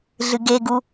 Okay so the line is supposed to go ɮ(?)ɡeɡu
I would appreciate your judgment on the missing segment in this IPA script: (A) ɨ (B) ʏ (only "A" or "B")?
A